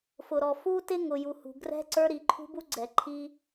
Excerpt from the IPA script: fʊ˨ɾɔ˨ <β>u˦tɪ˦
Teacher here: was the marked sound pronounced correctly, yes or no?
no